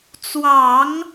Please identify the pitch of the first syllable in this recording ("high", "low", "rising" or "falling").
low